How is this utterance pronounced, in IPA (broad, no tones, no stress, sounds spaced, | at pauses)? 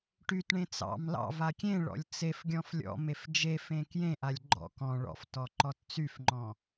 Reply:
ʈ y t ɳ ẽ t͡s ɑ̰ m l ɑ̰ v a kʲ ẽ ɭ ɔ̰ lʲ t͡s e f ɡʲ ɔ̃ f lʲ ɔ̰ m e f d͡ʒ e f ẽ k j ẽ ʔ a lʲ ɡ͡ǃ ɔ̰ k ɔ̃ ɭ ɔ̰ f t ɔ ǃ ɔ t t͡s y f ŋ͡ǃ ɔ̃